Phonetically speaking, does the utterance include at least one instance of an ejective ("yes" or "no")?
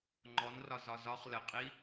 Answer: yes